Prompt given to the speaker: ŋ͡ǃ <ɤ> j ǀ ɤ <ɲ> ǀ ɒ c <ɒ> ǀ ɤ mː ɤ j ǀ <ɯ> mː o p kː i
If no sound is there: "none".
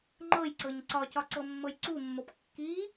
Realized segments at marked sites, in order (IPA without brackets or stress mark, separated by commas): ɤ, ɲ, ɒ, u